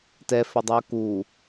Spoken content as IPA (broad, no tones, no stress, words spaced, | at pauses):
tɛfɵdˤʉʊ̯ ku